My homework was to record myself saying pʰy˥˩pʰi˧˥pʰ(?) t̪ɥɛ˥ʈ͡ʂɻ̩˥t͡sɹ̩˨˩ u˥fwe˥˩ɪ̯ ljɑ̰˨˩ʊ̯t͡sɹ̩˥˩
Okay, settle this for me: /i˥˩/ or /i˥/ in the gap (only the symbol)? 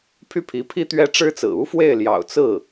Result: i˥